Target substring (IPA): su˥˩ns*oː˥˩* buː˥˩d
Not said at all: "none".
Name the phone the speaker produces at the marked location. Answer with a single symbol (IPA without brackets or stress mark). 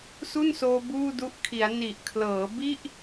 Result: oː˧